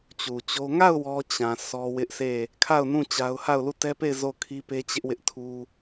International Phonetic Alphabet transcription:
t͡ɕ u˨ t͡ɕ o˦ ŋ a˦˨ ʊ̯ w ɔ˦ t͡ɕ ã˨ s ɔ˦ w ɪ˦ ʔ s e˦˨ | kʰ a˦˨ ʊ̯ n ũ˦˨ t͡ɕ a˦ ʊ̯ h a˦˨ ʊ̯ l u˦˨ t ɛ˦ p e˦˨ ɪ̯ z o˦˨ kʰ i˦ p e˦ t͡ɕ ɪ˦ ʔ w ɪ˦ ʔ tʰ u˦

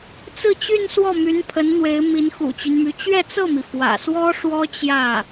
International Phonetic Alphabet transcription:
t͡s ɹ̩˥˧ t͡ɕ y˥˧ n s w ɔ˥˩ m y˧˥ n pʰ ə˧˥ n n̪ w e˧˥ ɪ̯ m i˧˥ n x ṵ˨˩ t͡ɕ y˦ n m y˧˥ t͡ɕ ɥ ɛ˥˧ t͡s ɤ˥˩ m i˩ f w ä̰˨˩ s w ɔ˥ ʂ w ɔ˥ t͡ɕ j ä˥˩

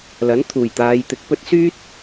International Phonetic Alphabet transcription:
l ɐ˨˥ n t̪ʰ uː˨˩ j t̪ aː˨˧ j t̪ ɪ˨˥ k̚ p ɵ˥ t̚ s yː˥ t̚

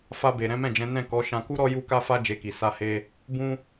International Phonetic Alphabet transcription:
f a˧ b e˨ ɾ ɛ̃˨˦ m ɛ̃˦˨ d͡ʒ ɛ̃˨˦ n ɛ̃˦˨ k ɔ˨˦ ʃ ã˧ k u˦ ɾ ɔ˦ j u˦ k a˦ f a˦ d͡ʒ e˧ k i˨ s a˧ h e˧ | b ũ˧

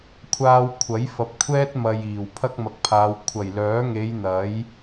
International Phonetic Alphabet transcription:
kʷʰ aː˧ w kʷʰ ɐ˨˥ j f ɐ˨˥ p̚ kʷʰ ɛː˥ t̚ m ɐ˨ j iː˨˩ w pʰ ɐ˥ k̚ m ɐ˨˥ k̚ pʰ aː˨˧ w kʷʰ ɐ˨˩ j l œː˨˥ ŋ e˨˧ j n̪ ɐ˨˥ j

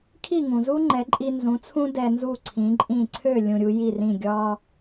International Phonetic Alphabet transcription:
kʰ i˥˩ ŋ ũ˩ z u˥ ŋ͡ǃ ɛ˩˥ ǃʼ i˧ n z ũ˩˥ t͡sʰ ũ˥ d ɛ˧ n z u˥˩ ǀʰ ĩ˩˥ ǃʼ ĩ˥˩ ǀʰ ø˥˩ lʲ ũ˧ ɾʲ u˩˥ j i˥˩ r ĩ˥˩ ɡʲ ɒ˧

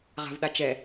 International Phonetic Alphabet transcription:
ʁ a̤ v ɗ a t͡ʃ ɛ

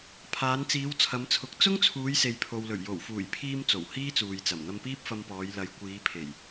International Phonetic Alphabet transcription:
pʰ aː˨˧ n t͡s iː˨˧ w t͡sʰ ɐ˨˧ m t͡sʰ ʊ˨˥ k̚ t͡s ʊ˥ ŋ t͡sʰ uː˨˧ j s e˨ j pʰ o˨ w l ɵ˨˩ ɥ j o˨˩ w f uː˨˩ j pʰ iː˧ m t͡s o˨˩ w h iː˥ t͡s uː˨ j t͡s ɐ˨˩ m n̪ ɐ˧ m p iː˥ p̚ f ɐ˧ m p ɔː˨˧ j l ɐ˨˧ j kʷ iː˨˧ pʰ e˨˩ j

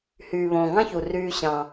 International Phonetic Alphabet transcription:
h yː˨ β õː˨ ŋ ɑ̃˦ ç u˨ r yː˦ ɕ ɑ̃˦

